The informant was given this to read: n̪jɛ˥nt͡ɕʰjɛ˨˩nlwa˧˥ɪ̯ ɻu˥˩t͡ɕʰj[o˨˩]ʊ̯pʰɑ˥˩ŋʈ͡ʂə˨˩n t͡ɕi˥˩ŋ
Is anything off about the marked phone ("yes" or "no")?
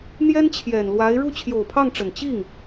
no